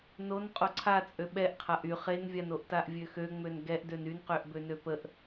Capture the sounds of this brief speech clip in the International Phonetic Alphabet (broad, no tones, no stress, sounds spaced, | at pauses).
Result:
n o n qʼ o ǀʰ a t͡sʼ ø ɓ ɛ ʔ qʰ a ʔ y χ e n vʲ a n o ʔ t a ʔ vʲ ø x ø ŋ͡m ø n ɡ ɛ ʔ d ø n y n q ø ʔ b ø n ø p ə ʔ